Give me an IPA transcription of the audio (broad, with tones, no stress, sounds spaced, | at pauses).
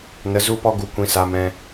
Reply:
n ə˨˦ z u˦ p ɔ˦ ɡ u˧ kʷ ĩ˧ s a˧ m ɛ̃˧